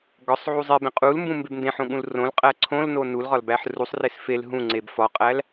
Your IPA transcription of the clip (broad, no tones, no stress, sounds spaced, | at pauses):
ɡ ɒ sˤ ʕ u zˤ i b ẽ qʼ u l m b ũ m b e b n d ẽ ħ õ ɠ ũ l r õ l qʼ æ ǀʰ õ l n o n u l ʁ ɒ l b æ ħ r u sˤ r e s f e l ɦ ũ ŋ͡ǀ e b f ɒ qʼ æ l